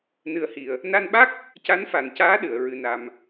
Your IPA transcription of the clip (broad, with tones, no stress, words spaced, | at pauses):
nɨ˧ə̯ hi˨˩ə̯ | na˧nɓa˦˥k̚ | ca˧˥nfa˨˩ncaː˧˥ ɗɨ˨˩˨ə̯ ɹɨ˧na˧m